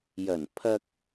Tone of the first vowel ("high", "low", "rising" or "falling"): low